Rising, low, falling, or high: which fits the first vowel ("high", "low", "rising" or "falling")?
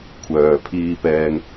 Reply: low